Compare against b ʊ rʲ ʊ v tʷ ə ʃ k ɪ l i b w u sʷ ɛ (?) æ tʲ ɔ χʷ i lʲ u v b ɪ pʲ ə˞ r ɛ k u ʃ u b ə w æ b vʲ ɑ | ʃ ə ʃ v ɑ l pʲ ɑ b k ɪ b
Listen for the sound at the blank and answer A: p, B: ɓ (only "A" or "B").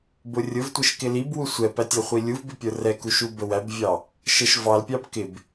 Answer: A